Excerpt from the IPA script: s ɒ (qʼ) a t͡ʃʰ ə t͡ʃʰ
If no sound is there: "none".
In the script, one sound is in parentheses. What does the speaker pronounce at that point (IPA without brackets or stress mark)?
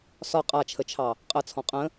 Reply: qʼ